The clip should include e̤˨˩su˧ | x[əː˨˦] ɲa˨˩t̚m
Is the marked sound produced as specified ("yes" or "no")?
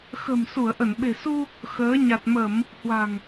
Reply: yes